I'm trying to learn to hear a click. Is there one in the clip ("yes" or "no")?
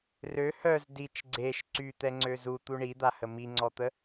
yes